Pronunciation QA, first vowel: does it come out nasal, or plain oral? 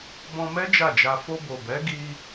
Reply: nasal